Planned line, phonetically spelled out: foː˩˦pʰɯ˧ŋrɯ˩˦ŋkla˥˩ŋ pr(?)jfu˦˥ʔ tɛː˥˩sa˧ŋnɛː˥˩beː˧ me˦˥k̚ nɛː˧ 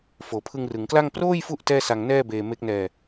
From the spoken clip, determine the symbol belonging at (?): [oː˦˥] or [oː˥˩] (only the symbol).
oː˥˩